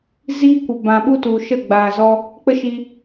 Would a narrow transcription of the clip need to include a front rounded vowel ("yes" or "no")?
no